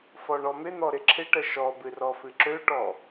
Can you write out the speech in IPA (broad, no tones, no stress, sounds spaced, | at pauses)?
f ɔ ɳ ɔ m ɪ n̪ ɔ ɾ ɪ ǁʰ ɪ ʈ ə ʃ ɔ b ɨ r ɔ f ɨ ǁ ø ʈ ɔ